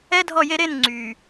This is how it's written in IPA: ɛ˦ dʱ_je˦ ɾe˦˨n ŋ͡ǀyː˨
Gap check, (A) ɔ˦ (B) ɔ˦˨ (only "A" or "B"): B